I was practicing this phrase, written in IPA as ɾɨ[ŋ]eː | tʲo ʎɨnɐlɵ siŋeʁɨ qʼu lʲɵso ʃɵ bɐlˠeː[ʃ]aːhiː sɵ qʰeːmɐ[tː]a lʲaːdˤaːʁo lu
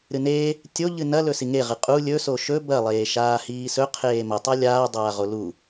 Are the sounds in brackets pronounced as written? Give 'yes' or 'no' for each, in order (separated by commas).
no, yes, no